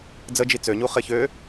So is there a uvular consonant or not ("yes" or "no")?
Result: yes